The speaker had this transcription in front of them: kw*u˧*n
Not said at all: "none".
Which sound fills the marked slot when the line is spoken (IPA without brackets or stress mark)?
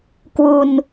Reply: u˧